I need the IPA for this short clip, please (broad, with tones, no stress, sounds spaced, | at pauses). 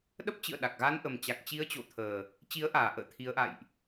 ɗ ə˦˥ p̚ t͡ɕ ɨ̰˧˨ ə̯ ɗ a˨˩ k̚ ɣ a˧ n ʔ ə˨˩ m t͡ɕ a˨˩ k̚ t͡ɕ i˨˦ ə̯ t͡ɕ o̰˧˨ t̪ʰ əː˨˩ | t͡ɕ i˨˦ ə̯ ʔ aː˨˩ ʔ ə̰ː˧˨ t̪ʰ i˨˦ ə̯ ʔ a̰˧˨ j ʔ